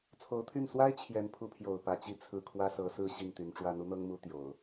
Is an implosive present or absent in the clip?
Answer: absent